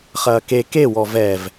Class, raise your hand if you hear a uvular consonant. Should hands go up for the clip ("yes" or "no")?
yes